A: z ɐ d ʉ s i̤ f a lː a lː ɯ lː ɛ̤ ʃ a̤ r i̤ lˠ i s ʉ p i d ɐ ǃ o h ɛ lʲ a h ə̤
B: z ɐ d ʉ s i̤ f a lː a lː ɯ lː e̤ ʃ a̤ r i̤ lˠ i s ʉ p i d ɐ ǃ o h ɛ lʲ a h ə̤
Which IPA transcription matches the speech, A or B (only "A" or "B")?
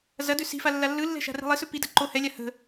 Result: A